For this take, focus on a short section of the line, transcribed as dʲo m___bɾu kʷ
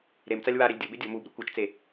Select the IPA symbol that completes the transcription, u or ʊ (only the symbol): u